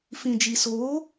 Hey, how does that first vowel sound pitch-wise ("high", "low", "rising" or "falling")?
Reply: low